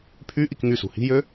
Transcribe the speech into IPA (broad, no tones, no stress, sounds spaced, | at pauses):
pʰ y ʔ i k ŋ y s ṳ h i̤ j ø